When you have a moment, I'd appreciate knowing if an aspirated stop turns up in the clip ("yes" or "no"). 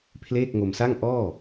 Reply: yes